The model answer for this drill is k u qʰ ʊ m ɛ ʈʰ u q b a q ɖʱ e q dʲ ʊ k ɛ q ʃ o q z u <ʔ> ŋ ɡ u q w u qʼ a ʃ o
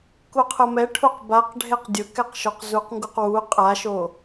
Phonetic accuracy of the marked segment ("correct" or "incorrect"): incorrect